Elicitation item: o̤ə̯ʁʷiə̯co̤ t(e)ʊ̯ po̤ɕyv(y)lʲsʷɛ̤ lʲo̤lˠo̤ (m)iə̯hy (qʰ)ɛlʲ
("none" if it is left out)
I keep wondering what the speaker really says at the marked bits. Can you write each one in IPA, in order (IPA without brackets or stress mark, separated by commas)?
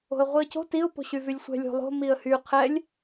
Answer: i, y, m, qʰ